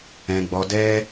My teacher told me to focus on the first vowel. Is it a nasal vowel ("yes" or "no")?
yes